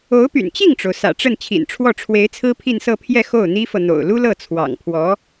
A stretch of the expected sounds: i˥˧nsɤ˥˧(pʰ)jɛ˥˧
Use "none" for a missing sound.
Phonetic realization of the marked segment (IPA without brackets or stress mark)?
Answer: pʰ